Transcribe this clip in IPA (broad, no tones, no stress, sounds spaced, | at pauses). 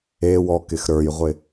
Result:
e w ɔ k ɪ x ɾ ə˞ j ʁʷ ɪ